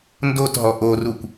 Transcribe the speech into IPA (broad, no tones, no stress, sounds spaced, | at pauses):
n d o t ɦ ɔ ʔ o r u kʷ